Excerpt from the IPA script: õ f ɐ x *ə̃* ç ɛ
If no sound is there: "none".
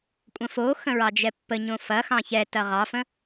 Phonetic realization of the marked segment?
ɑ̃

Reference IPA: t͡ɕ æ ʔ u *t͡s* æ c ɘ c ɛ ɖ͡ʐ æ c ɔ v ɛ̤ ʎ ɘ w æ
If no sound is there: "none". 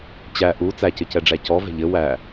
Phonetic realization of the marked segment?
t͡s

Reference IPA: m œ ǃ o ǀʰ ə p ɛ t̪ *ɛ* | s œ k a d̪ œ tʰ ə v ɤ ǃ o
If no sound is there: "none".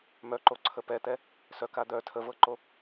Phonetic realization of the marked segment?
ɛ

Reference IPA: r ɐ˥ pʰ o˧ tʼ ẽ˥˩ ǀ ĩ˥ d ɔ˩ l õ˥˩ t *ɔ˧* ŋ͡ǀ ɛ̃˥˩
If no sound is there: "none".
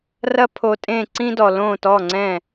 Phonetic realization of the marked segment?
ɔ˥˩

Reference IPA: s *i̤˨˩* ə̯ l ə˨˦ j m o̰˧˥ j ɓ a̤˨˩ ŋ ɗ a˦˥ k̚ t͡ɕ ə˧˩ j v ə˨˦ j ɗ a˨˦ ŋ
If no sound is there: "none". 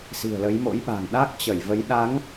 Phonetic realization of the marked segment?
i̤˨˩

